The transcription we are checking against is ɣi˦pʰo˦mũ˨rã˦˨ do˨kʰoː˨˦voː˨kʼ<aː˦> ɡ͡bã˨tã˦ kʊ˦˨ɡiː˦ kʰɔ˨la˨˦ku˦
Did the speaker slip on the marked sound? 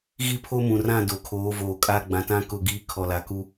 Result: yes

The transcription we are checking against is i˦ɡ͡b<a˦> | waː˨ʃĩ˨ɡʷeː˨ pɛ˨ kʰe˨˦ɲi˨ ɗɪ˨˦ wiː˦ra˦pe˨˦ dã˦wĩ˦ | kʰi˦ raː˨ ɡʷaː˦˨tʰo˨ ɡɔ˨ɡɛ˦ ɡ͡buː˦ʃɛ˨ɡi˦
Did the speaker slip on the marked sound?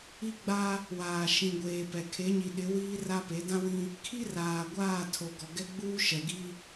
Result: no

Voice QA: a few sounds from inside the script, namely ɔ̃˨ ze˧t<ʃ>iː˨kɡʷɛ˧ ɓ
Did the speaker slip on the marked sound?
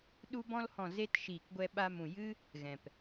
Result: no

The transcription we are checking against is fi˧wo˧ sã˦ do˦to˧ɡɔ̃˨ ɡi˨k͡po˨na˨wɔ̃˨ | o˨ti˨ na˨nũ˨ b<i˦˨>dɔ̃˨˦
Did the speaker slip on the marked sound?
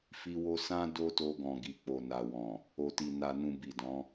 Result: yes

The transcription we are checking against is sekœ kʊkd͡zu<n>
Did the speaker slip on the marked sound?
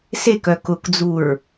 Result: yes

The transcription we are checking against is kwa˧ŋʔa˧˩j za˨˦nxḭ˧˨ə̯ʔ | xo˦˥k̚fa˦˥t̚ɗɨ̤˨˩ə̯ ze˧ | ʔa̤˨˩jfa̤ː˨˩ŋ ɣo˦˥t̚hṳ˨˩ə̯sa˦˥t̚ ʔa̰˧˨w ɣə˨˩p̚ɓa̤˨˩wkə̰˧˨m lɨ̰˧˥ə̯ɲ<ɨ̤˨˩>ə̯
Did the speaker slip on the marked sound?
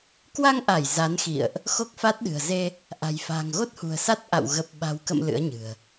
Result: no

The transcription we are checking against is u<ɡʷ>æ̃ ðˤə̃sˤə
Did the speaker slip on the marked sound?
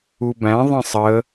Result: yes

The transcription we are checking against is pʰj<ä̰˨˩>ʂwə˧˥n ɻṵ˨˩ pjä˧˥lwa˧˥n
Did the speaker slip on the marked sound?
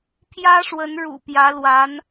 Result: yes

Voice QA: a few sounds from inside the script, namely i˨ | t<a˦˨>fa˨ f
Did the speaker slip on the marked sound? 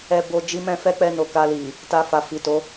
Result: yes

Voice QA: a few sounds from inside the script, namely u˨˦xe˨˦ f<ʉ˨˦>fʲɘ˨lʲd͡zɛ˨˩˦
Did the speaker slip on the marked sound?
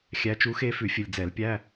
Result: yes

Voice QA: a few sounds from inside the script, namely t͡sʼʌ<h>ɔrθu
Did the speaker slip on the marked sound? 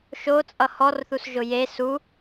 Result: no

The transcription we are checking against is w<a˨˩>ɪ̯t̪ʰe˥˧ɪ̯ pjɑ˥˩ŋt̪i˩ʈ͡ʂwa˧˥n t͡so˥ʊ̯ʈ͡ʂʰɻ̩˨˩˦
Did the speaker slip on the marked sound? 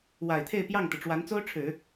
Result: no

